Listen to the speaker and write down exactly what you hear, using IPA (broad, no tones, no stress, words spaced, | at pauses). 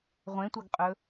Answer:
ʁʷẽtʷɐɡqʼɵ